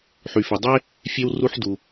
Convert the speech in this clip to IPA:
ħ y˩ f ø˩ dˤ e˥ | fʲ e˥ w r u˥ ħ d u˩

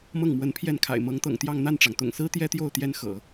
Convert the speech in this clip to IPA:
m ɤ˥˩ ŋ m w ə˧˥ n pʰ j ɛ˥˩ n kʰ a̰˨˩ ɪ̯ m ɤ˧˥ ŋ t̪ ɤ̰˨˩ ŋ t̪ j ɑ˥˧ ŋ n̪ a˥˩ n ʈ͡ʂ ɑ˩ ŋ t̪ ʊ̰˨˩ ŋ s ɹ̩˥ t̪ j ɛ˥ t̪ j o˥˩ ʊ̯ t̪ j ɛ˥ n x ɤ̰˨˩˦

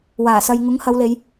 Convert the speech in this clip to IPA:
w aː˨˩ s ɐ˧ j ŋ ʊ˨˥ ŋ h ɐ˨˧ w l e˨˧ j

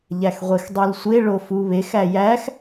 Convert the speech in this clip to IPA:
ʎ æ x ʁʷ e x dˤ u l sʷ e ɭ o f u β e x æ j æ x

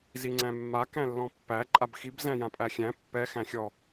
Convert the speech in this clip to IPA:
z i ŋ͡ǀ æ̃ mː a k æ̃ lː ɔ̃ pː æ ǃʼ a b x i b z æ̃ j ã pʼ æ xʲ æ̃ pː ɛ x æ̃ xʲ ɔ

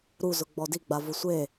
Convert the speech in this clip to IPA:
ɾ u z ʊ ɡ͡b ɔ d i ɡ͡b a v ʊ sʷ e

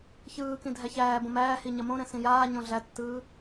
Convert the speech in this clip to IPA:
ç ɯː k ĩ dʱ æ ç æː b õ m æː h i ɲ ɐ m õ ɾ ɛ̃ s ĩ j aː ɲ õ ɮ æ tː ɯː

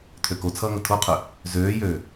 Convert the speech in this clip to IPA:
tʰ ø k o t͡sʰ ʌː ŋ ə tʰ o qʰ ʉ | z øː j øː

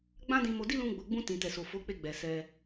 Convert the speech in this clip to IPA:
ɡ͡b ã˦ d ĩ˧ m o˧ d i˦ l ũ˧ ɡ͡b o˨ ɡ͡b ũ˧ t ĩ˨ t ɛ˨ s o˨ f o˨˦ k͡p e˧ ɡ͡b ɛ˨ s ɛ˧

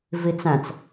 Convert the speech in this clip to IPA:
v i t͡s æ̃ t͡s

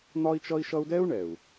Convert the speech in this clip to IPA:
n̪ ɒ˥ i̯ t͡ʃ ʌ˥ i̯ ʃ ʌ˥ u̯ d ɛ˥ u̯ ɳ ɛ˩ u̯

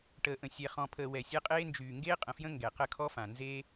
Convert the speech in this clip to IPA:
ʈ əː˨ ʔ ə̃˨ sʲ ɛ˨ χ ɔ̃˨ pʰ əː˨ w ɛ˨ sʲ ɛ˦ qʼ eː˦ n d͡ʒ yː˨ ŋ ɡ eː˦ qʼ ə̃˨ f j ə̃˦ ŋ ɡ ɛ˨ q ə˦˨ kʰ ɔ˦ f ã˨ n z eː˦

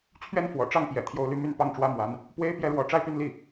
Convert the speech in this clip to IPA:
t͡ɕʰ ɥ ɛ˥˩ n f w ɔ̰˨˩ ʈ͡ʂ ɑ˥˩ ŋ p j ɛ̰˨˩ t̪ʰ j o˧˥ ʊ̯ l y˥˧ m y˥˧ n p ɑ˥˩ ŋ ʈ͡ʂ w ä˥ m w a˧˥ n | p w e˥ ɪ̯ p j ɛ˥˩ ɻ w ɔ˧˥ ʈ͡ʂ a˥˧ ɪ̯ p y˥˧ n l i˥˩

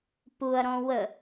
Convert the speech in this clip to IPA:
p u ɐ̯ ɾ ɔ̃ w ə

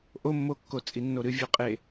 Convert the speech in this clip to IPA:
ʔ o mː o kː o t͡sʼ i nː o ɾ ɨ vʲ ʉ qʼ e

